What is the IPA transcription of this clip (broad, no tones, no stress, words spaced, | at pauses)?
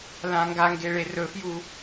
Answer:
lãŋɡaŋɡe ɭerɵfju